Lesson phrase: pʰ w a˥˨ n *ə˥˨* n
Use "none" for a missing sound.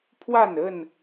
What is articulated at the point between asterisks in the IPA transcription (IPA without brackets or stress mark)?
ə˥˨